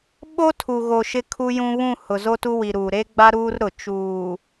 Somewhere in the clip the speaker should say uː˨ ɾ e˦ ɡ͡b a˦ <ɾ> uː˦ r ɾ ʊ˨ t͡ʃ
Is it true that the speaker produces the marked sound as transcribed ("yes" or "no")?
yes